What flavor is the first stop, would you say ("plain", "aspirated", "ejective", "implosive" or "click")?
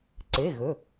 click